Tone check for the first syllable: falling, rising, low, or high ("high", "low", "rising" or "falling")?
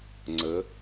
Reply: rising